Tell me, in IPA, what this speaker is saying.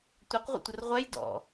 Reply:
tʷ ɛ q ʁʷ ə̰ tʷ ə r ʁʷ ɛ j d ɔ̰

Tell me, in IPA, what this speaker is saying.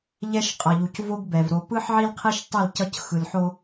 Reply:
ʎ ɛ˦ ʃ qʼ ʌ˨ ʎ u˨ c v o˦ ɡ b ɛ˨ v ɾ o˨ p ɯ˦ ħ ʕ i˦ l qʰ e˦ ʃ tˤ i˦˨ l c ʌ˦ c x ɯ˨ l ħ o˦

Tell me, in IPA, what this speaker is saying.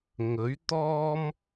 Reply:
ŋ ɵ˨˥ ɥ t̪ ɔː˥ m

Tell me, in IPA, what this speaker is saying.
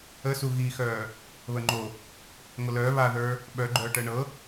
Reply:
ə s u ɣ i x œː | β ə ŋ͡ǃ o | ŋʷ ə l œː β a ð ə˞ | ɓ œ ɡ͡ǃ œː ʈ ɜ ɳ ɤ

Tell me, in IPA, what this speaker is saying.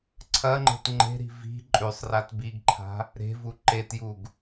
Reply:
ǀʰ ɐ ŋ͡ǃ e̤ t ŋ͡ǃ e̤ ɾ i̤ v i̤ ǃʼ ʉ sˤ r a t b i ɡ ǃʰ a̤ | ɾ e̤ v u ǃ e t j u ɡ

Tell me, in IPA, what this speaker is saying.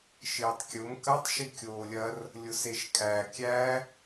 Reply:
ʃ ɪː tˤ kʲ ʊ m k ɐ tˤ ʃ i kʲ oː lʲ ɐ r | lʲ ʊ s e ʃ kʼ æ kʲ æ

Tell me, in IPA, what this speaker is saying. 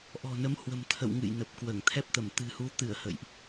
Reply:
ʔ ɔ̤˨˩ n ə˨˦ m h w ə̤˨˩ m t̪ʰ ə̰˧˨ w ŋ ɨ̰˧˨ j n ə˨˩ p̚ k w əː˧˩ ŋ t̪ʰ ɛ˦˥ p̚ t̪ ə˧˩ m t̪ ɨ̤˨˩ h u˨˦ t̪ ɨ˧˩ ə̯ h ə̰˧˨ j ʔ

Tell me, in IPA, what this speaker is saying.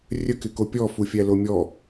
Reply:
rʲ ə k ɪ k o pʲ ɔ f u fʲ æ l o mʲ ɔ

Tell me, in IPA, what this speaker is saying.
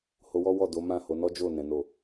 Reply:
h o˧ w ɔ˦ w ɔ˦˨ d o˨˦ m ã˦˨ h o˨˦ n ɔ˦ d͡ʒ o˦˨ n ɛ̃˨˦ n o˦˨

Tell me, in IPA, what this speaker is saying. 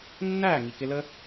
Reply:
nː æː˦˨ ŋ i˨ k ɪ˧ l ə˦

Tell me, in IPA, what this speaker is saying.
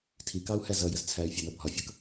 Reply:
tʰ i k ɑ u̯ h æ z ʌ j ə z t͡sʰ æ y̯ fʲ æ n ʌ bʱ ɒ fʲ ʌ k

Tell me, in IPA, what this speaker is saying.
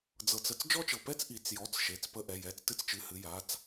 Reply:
d͡z ɤ˩ t͡s ə˩˧˩ t͡s d͡ʒ ɔ˧ t͡ʃ ɤ˩ p ɛ˧ t͡s ʔ i˩˧ t͡s j ɔ˩˧˩ t͡s ʃ e˩˧˩ t͡s p ə˧ ʔ ɛ˩˧˩ j ɛ˩˧˩ t͡s t ɨ˧ t͡s t͡ʃ ɨ˩˧˩ h ɨ˩˧ j a˩˧˩ t͡s

